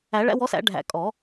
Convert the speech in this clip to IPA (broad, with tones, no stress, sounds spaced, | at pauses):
æ˨˩˦ ɭ æ̰˨˥ w ɔ˨˥ s æ̰˨˩˦ ɖʱ æ̰˨˩˦ kʼ ɔ˨˩˦